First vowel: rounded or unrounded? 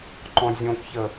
rounded